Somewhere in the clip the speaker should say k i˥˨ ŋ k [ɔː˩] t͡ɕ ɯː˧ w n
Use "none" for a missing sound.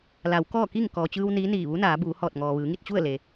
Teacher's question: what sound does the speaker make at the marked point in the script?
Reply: ɔː˩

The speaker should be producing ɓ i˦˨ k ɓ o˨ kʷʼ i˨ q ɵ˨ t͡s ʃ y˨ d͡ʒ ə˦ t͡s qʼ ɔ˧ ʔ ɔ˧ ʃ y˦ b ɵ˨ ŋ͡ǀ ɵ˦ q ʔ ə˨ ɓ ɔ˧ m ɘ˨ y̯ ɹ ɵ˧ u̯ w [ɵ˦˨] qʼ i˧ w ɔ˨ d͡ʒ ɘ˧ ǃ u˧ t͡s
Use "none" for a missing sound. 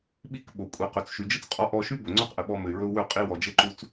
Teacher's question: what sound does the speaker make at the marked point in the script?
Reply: ɵ˦˨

